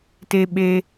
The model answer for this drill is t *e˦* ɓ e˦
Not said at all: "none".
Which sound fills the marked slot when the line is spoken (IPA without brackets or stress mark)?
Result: e˦